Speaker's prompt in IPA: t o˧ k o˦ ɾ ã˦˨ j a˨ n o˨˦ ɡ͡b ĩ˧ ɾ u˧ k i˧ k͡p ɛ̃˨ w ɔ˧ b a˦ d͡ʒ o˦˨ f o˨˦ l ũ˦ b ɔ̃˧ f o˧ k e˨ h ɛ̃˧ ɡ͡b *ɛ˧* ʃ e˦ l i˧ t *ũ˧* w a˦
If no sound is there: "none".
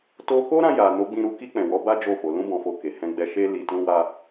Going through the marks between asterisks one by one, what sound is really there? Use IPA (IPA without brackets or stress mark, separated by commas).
ɛ˧, ũ˦